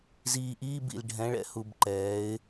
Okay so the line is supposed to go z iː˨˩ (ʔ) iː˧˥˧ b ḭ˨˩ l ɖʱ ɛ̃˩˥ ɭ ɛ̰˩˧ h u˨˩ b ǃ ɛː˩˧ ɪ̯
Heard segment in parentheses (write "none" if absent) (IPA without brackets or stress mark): ʔ